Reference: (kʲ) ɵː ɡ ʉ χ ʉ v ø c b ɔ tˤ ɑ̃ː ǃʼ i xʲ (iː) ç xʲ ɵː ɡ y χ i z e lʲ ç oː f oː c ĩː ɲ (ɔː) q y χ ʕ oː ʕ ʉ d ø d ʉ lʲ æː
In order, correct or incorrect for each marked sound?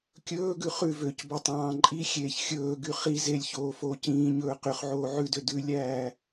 correct, incorrect: eː, incorrect: ɵː

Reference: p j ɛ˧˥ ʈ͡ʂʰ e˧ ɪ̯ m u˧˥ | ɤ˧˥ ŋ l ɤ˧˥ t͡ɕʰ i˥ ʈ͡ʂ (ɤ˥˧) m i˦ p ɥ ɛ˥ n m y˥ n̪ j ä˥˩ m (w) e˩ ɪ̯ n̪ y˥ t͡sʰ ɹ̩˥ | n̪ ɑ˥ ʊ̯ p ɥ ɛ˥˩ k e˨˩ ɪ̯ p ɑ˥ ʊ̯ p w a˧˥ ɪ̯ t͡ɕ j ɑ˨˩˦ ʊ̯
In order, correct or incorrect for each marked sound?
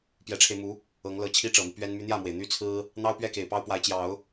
incorrect: ɤ˨˩, correct

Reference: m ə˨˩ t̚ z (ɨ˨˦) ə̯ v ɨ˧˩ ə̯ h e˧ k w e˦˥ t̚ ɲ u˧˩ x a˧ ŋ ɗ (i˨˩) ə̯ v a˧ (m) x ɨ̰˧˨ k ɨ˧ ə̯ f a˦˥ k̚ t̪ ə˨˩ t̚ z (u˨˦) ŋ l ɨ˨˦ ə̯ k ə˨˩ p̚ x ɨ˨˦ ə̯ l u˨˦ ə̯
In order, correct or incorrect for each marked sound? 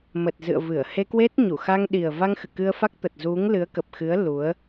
incorrect: ɨ̰˧˨, correct, incorrect: ŋ, correct

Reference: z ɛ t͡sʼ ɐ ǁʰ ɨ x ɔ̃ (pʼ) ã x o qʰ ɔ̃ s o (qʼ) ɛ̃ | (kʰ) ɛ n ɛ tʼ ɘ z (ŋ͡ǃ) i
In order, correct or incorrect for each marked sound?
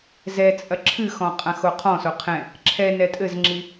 incorrect: qʼ, incorrect: qʰ, incorrect: ǁʰ, incorrect: ŋ͡ǁ

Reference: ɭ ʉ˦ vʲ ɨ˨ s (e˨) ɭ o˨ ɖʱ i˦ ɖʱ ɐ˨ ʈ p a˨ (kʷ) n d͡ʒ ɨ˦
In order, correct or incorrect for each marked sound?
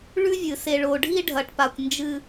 correct, correct

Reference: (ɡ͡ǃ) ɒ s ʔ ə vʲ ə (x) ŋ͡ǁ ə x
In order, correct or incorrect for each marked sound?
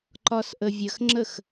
incorrect: ǃ, correct

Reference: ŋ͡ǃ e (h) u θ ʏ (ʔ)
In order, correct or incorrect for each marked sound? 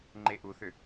incorrect: ʔ, incorrect: none

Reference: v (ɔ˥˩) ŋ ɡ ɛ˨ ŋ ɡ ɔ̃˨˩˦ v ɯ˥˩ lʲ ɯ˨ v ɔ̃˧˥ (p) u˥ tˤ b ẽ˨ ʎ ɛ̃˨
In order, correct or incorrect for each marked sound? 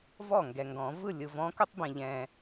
correct, incorrect: k

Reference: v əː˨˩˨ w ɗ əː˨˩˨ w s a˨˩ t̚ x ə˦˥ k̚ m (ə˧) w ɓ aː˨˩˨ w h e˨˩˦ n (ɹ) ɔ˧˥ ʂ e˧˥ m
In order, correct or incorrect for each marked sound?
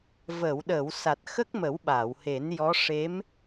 incorrect: ə˨˩˦, incorrect: j

